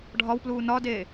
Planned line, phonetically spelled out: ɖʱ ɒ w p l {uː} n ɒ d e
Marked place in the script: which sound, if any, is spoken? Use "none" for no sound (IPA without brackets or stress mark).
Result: uː